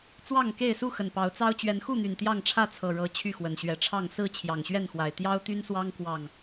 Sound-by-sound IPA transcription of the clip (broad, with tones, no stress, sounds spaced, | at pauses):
t͡s w ɑ˥˨ ŋ k e˥˨ ɪ̯ s u˥˨ x ə˨˩ n p ɑ˨˦ ʊ̯ t͡s ɑ˦ ʊ̯ t͡ɕ ɥ ɛ˨˦ n x u˥˨ n̪ y˨˩ n t̪ j ɑ˥˨ ŋ ʈ͡ʂʰ ä˥˨ t͡sʰ ɤ˨˩ ɻ ɤ˨˦ t͡ɕʰ y˥˨ x w ə˨˩ n ɕ ɥ ɛ˨˦ ʈ͡ʂʰ ɑ˥˨ ŋ s ɹ̩˥˨ t͡ɕʰ j ɑ˨˩ ŋ ɕ ɥ ɛ˥˨ n x w a˨˩ ɪ̯ t̪ j ɑ˦ ʊ̯ t̪ y˦ n s w ɑ˦ ŋ k w ɑ˥˨ ŋ